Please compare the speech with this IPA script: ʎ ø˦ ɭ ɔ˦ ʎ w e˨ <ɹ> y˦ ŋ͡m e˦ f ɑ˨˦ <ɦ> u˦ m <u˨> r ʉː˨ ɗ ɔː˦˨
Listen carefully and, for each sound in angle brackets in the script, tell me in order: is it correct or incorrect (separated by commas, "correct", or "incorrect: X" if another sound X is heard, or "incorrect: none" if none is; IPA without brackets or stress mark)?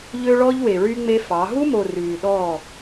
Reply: correct, correct, incorrect: o˨